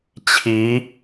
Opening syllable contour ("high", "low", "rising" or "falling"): rising